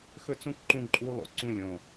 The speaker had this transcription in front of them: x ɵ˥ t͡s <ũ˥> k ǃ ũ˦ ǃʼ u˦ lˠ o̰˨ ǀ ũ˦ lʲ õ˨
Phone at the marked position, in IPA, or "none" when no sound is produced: ũ˥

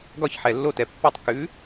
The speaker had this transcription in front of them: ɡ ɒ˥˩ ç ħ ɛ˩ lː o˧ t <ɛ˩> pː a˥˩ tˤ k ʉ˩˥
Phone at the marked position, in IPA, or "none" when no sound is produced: ɛ˩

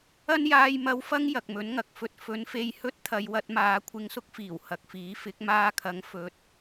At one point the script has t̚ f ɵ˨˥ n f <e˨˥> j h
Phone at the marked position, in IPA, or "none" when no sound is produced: e˧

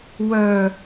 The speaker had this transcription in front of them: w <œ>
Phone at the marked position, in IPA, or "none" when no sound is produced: œ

